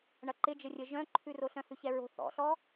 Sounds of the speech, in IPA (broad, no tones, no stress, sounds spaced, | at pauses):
ɳ ɐ ǃ ɪ d͡ʒ ə rʲ ə ʒ œ̃ ǃʰ ʉ r o ɬ œ̃ h ʉ ç ɛ ɹ o̤ θ ɔ̰ ɬ ɔ